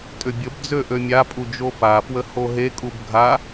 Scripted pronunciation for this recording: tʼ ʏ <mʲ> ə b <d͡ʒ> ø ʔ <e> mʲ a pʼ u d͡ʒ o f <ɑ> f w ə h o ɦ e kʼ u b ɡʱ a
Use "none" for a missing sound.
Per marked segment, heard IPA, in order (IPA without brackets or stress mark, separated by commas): bʲ, d͡z, ø, a